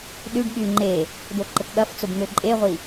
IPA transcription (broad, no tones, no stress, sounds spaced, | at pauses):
ɗ y ɖ ɠ y ŋ͡ǃ e | d̪ o ǃ ə k ɠ ɐ f t͡s ʊ b n̪ ø ǃʼ e ʁʷ i